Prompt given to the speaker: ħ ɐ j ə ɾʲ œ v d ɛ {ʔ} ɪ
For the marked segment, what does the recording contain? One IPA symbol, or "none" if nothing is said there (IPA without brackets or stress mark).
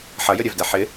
ħ